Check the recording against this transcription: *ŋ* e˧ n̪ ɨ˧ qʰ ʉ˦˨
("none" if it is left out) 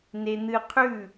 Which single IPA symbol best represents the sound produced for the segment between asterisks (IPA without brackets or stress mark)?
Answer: n